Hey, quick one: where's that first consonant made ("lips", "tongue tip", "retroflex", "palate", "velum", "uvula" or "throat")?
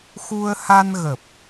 velum